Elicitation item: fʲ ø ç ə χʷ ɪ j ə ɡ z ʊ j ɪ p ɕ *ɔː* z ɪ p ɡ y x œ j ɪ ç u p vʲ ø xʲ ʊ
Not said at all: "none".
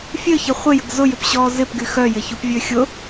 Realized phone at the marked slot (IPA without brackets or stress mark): ɔː